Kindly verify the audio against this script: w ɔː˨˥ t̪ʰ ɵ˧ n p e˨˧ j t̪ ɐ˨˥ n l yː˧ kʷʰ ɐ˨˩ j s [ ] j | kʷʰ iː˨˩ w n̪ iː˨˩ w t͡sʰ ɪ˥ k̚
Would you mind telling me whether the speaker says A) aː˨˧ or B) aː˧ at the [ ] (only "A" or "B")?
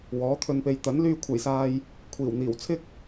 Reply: B